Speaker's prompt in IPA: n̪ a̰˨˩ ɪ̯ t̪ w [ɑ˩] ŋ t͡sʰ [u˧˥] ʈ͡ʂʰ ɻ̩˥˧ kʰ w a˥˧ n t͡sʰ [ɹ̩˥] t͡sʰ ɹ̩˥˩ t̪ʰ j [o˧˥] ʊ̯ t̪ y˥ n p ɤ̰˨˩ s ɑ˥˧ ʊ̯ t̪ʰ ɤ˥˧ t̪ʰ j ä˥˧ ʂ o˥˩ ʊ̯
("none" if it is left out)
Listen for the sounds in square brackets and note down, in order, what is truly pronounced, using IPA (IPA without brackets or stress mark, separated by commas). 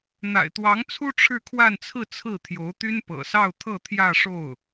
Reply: ɑ˧˥, u˥, ɹ̩˥˧, o˧˥